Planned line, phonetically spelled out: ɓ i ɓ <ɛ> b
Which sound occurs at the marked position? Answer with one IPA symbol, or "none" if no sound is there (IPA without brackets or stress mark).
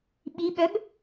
œ